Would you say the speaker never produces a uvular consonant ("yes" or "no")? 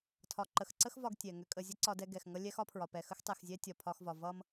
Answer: yes